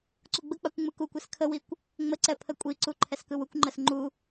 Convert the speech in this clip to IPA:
ǀ u ɡ͡b ə k͡p a kʷ ŋ͡m ɯ k u kʷ ɛ s kʰ ə w i kʷ | ŋ͡m ə ǀ ɛ pʰ ə kʷʼ i ǀ u ǃʰ ɛ s k ɯ w u kʷ ŋ͡ǃ ə s ŋ͡ǃ u

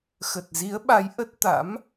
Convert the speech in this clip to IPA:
x ə˨˩ t̚ z i˨˦ ə̯ ɓ a˨˦ j ʔ ə˦˥ t̚ t̪ a̰˧˥ m

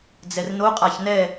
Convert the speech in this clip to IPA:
d͡z ɛ r n o qʼ a ç n ɛ

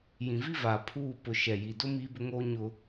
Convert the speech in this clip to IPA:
j ĩ˨ v i˦ v aː˨ pʰ uː˦˨ p ʊ˨ ʃ ɛ˨ j i˨ d ʊ˦ m iː˦ b ʊ˦ ŋ oː˦ ɲ ʊ˦

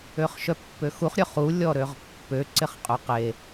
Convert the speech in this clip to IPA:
ø χ ʃ œ pː ø x u χ ɾʲ œ χ u lʲ ɔ ɾ ø ʁ pː ø ǀ ɪ χ qʼ ʊ q e

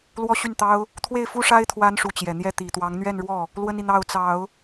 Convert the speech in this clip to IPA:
l w ɔ˥ ɕ y˥˩ n t̪ ɑ˥ ʊ̯ | t̪ʰ w e˥˩ ɪ̯ f u˥ ʂ a˥ ɪ̯ t̪ʰ w a˥ n ʂ u˧˥ t͡ɕ j ɛ˨˩ n̪ j ɛ˥ t̪ i˨˩ t̪ w ɑ˧˥ ŋ n̪ ɥ ɛ˥˧ n ɻ w ɔ˥˩ | l w ə˥ n i˨ n̪ ɑ˥˩ ʊ̯ t͡s ɑ˨˩˦ ʊ̯

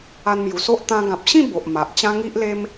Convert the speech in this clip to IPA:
a˧ n m j u˨˩ s o˦ ʔ t̪ ã˧ ɡ ã˨ p̚ ɕ ĩ˥˧ b o˨ ʔ m a˨ ʔ t͡ɕ ã˦ ŋ i˦ ʔ l e˦ m

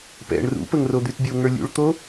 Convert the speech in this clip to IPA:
p ɛ̰ ɳ r ṵ p ə ŋ r o d̪ y t bʲ o ŋ ə˞ lʲ ṵ ɭ t̪ o

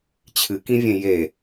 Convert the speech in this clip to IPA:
t͡ɕʰ ɨ k ĩ vʲ ẽ j e

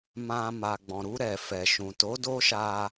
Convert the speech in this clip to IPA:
m ã˧ m a˨ ɡ͡b ɔ̃˨ ɾ u˧ ɾ ɛ˨ f ɛ˨ ʃ ũ˨ t o˨˦ d o˦ ʃ a˧

